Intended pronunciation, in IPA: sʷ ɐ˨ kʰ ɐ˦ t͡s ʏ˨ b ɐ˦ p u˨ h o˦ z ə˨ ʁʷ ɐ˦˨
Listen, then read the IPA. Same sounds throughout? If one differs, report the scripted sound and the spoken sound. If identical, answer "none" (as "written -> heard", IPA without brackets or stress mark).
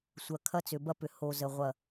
u˨ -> ʏ˨